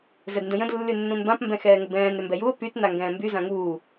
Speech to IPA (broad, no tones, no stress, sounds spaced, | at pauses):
z ɛ d n d ə̃ j ə̃ d lː y nː ũ n b ã p m b ɛ̃ x ɛː ŋ ə b ɛ̃ː n ɾ ʏ m b ɛ j u o̯ p y t n a ŋ ɡ ɛ̃ː m b y z ã ŋ uː